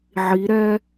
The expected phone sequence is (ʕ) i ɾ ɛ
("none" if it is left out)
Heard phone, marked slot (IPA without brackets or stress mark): ʕ